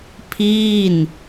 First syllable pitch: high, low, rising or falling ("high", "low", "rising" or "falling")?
falling